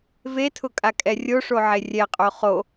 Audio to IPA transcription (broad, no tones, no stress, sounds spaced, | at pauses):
v e tʰ ʊ kʼ a kʼ ɛ rʲ o ʂ o ʕ e rʲ ɛ qʼ o χ o